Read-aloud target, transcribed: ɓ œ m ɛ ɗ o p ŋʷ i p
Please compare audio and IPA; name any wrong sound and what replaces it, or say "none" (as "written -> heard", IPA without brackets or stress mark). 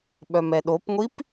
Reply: none